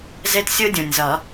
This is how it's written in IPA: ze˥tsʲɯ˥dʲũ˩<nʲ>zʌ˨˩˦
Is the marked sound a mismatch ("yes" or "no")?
no